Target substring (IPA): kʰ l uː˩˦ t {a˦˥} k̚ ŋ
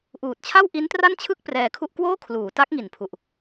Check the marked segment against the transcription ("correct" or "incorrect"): correct